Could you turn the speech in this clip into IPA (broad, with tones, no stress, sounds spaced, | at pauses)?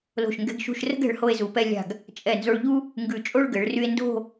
l o̤˧˩ ʃ ŋ ɡ ɛ̤˧ ɡ ʃ ṳ˧ ʃ r ə̤˥ ɡ ɛ̤˩˧ ɭ h o˧ e̯ z u˩˧ p ɛ˧ lʲ a̤˧˩ ɡ | t͡ʃʼ ɛ˧˩ n z o˧ ɭ ʎ u˥ | ŋ ɡ ʉ˧˩ t͡ʃʼ o˥˧ ɭ ɡ ɘ˩˧ ɭ r y˧ e̯ n d o̤˥˧